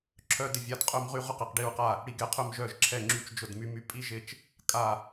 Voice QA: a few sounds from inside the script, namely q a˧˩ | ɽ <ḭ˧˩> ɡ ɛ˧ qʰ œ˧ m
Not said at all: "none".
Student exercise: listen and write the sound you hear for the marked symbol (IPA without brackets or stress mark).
i˧˩